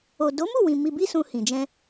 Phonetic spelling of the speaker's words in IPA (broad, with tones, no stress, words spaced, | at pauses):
o˨do˨˦mu˦˨wĩ˨ mi˧bi˦sũ˧ hĩ˨ d͡ʒɛ̃˧